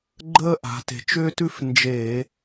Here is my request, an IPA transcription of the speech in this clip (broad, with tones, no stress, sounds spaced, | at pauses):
ɡ͡ǃ əː˥ ʔ a̤˩˧ t e̤˩˥ t͡ʃ ʏː˥ t ʉ˥ f n d͡ʒ e˧˩˧